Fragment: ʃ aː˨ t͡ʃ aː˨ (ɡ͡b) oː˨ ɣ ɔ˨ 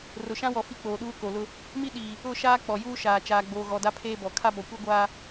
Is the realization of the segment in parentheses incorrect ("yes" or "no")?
no